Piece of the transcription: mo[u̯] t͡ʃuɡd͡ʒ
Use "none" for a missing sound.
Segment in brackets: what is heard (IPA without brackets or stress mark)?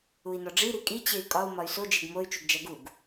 y̯